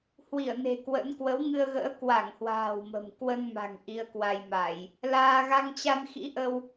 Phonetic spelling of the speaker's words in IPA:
h w i˧˩ ə̯ n e̤˨˩ k w ə̰˧˥ n k w ə˨˦ w ŋ ɨ˧ ə̯ ɣ ə̰ː˧˥ k w a˧˩ ŋ h w a̤ː˨˩ w m ə̤˨˩ m k w ə˧ n m a̤˨˩ ŋ ʔ i˧ ə̯ k w a˧ j m a˧˩˨ j | l aː˧ ɣ a˧ ŋ t͡ɕ a˧ n x ḭ˧˥ ʔ ə˧ w

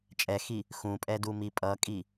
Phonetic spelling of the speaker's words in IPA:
t͡ʃʼ ɛ x i | x ũ pʼ ɛ d u m i pʼ ʌ kʼ i

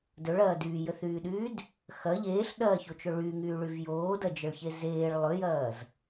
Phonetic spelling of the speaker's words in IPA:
d ɵ ɭ ɐː d yː j ə θ yː ɗ yː d | x ɐ ʎ eː ɬ ɗ ɐː ç o t͡ʃ ɵ ɭ y ŋ yː ɭ y v j oː d ɐ d͡ʒ ə ɭ ç e z eː ɭ lˠ ɵ j ɐː z

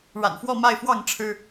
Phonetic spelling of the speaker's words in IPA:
ɻ a̰˨˩ n f w ɔ˥˨ m a˥˨ ɪ̯ f w ɑ˥˨ ŋ ʈ͡ʂʰ ɻ̩˦

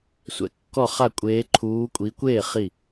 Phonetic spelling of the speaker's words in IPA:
sʷ ɛ̰˧˥ kː ɔ˥˨ χ a˥˨ kʷʼ eː˧˥ ǃʰ uː˧˥ kʷʼ i˧˥ kʷ eː˥˨ χ i˥˨

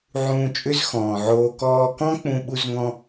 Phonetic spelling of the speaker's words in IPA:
ʕ ũː˧ t͡ʃʼ ʏ˥ z x ɔ̃ː˩ ʕ oː˧ k ɔː˧ k ɔ̃˥ k͡p ũ˧ ɓ u˥ z ŋ ɔ̃˥

